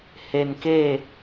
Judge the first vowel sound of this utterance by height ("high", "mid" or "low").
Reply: mid